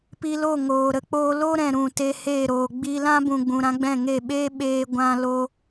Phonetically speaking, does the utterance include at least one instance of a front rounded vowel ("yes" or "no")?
no